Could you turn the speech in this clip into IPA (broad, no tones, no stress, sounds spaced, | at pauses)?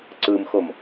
ǀ ɯ m x o m